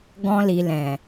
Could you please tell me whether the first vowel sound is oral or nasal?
nasal